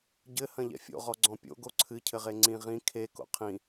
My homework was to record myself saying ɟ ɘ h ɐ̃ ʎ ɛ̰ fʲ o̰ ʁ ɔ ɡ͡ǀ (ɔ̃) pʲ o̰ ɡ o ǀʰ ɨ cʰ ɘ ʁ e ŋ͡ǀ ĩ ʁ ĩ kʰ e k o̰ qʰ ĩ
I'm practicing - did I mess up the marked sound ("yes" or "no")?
no